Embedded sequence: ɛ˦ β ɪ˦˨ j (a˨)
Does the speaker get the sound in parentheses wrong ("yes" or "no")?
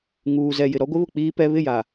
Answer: no